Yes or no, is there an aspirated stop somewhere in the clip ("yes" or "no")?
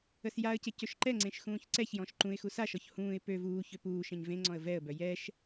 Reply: no